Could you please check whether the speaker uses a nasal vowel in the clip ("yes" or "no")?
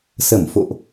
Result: no